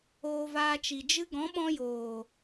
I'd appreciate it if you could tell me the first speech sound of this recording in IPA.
oː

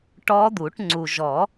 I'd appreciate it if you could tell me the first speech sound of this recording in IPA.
ʈ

